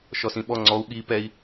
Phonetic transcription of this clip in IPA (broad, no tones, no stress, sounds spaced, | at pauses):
ʃ ɔ s ĩ ɓ ɔ ŋ͡ǀ ɔ u̯ ɠ i p ɛ i̯